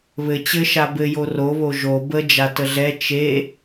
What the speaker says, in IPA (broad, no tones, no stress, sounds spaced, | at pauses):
β ɘ t͡ɕ ɘ ʃ a b ɘ j o r o β o ʒ o b ə d͡ʒ a t ə ɮ ɛ t͡ʃ e